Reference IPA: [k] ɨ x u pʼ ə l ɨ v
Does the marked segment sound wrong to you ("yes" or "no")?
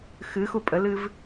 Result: yes